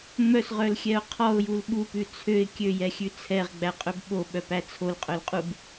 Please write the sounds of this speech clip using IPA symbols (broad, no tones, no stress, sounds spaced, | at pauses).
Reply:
ŋ͡m œ s ʁ œ l xʲ ɛ ʊ̯ qʰ ɔ ʊ̯ j u l ɓ u p ʉ t͡sʰ ø ɪ̯ kʲ ø j ɛ xʲ ʉ t͡sʰ ɛ ʁ ɡ͡b æ qʼ ɵ b ɓ o ɓ œ p æ t͡sʰ o l qʼ œ l qʼ u b